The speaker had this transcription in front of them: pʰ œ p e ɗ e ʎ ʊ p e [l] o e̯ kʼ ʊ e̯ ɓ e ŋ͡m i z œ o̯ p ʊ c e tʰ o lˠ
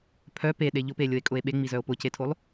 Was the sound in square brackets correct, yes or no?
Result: no